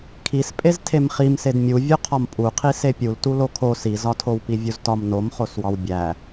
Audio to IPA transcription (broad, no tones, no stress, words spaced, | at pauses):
kʰispʼez tʰemχimsed mʲu vʲoqʰɒmpʼuqʰi sepʲul tulokʰo sizɒtʰowpi vʲuztɒm nomχoswɒw bʲæ